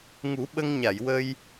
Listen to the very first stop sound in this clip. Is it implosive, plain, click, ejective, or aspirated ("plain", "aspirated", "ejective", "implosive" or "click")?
implosive